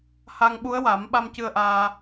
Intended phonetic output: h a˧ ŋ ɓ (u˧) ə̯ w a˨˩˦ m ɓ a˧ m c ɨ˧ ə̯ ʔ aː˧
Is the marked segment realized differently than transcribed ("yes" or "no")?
yes